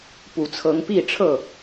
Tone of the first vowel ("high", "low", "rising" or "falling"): low